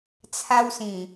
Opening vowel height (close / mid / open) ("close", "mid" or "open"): open